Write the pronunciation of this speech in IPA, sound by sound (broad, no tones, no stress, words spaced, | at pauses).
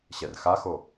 ɕɛrxaxo